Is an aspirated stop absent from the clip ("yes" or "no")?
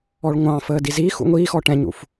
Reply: yes